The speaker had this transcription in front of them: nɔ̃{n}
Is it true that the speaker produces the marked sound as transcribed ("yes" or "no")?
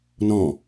no